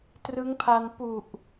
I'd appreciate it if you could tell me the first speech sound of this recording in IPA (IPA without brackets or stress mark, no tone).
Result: t